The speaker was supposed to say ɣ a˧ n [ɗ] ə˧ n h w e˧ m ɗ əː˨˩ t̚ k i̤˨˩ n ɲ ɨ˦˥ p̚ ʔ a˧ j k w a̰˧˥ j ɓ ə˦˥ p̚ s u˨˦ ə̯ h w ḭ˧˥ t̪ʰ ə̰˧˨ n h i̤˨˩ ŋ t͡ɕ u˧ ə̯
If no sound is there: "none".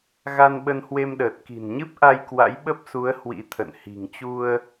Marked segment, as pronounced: ɓ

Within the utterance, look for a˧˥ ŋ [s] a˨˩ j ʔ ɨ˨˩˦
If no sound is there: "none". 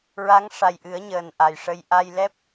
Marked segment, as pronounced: ʂ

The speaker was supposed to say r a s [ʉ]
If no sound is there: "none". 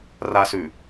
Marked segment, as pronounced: ʉ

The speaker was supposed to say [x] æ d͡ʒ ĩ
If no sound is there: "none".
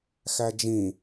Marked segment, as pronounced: x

